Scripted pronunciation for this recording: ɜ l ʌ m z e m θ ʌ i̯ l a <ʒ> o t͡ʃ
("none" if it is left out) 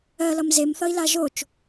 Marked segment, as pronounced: ʒ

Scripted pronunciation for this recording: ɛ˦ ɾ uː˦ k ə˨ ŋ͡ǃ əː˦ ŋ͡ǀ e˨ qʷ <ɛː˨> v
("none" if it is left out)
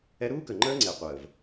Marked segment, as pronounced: əː˨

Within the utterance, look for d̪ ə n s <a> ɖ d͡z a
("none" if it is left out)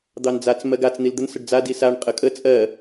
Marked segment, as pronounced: ə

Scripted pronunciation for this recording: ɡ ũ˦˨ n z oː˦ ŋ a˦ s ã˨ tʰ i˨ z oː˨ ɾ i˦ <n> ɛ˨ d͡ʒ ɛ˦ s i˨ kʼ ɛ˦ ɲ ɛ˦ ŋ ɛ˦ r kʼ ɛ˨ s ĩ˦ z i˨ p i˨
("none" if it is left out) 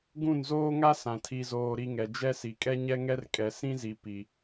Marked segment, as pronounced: ŋ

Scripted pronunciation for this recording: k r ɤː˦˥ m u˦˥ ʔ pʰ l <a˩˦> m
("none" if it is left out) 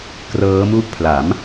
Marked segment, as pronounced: a˩˦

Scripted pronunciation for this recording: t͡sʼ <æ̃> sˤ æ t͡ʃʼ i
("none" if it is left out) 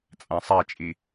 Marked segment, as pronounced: æ̃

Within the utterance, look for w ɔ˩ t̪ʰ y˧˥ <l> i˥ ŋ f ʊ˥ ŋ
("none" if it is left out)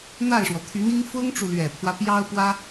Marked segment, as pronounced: n̪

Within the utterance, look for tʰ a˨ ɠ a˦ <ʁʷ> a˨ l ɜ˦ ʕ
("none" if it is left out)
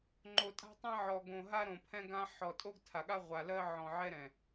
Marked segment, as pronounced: ʁʷ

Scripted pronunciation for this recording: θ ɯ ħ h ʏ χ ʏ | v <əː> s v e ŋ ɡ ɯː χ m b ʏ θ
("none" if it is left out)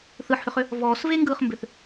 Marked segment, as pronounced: ɔː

